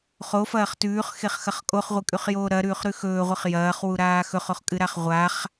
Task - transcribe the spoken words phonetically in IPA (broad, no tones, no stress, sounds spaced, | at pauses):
χ o f ɐː χ t ʉː χ x e χ x ɐ χ kʼ o χ ʁʷ ɨ kʼ ʉ χ j oː ɾ ɐ ɾ ʉː χ ɾ ʉ x ɵː ʁʷ ɨ χ j ɐː χ w u ɾ aː x ɵ χ o χ kʼ ɨ ɾ a χ ʁʷ a χ